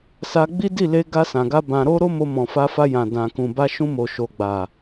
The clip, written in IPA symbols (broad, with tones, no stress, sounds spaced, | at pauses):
s a˧ ɡ͡b i˦ d i˦˨ l e˧ ɡ a˧ s ã˨ ɡ a˧ b ã˧ ɾ o˦ ɾ o˦ m o˧ m ɔ̃˨ f a˧ f a˧ j ã˨ d ã˨ k ũ˨ b a˧ ʃ ũ˧ m o˨ ʃ o˨ ɡ͡b a˨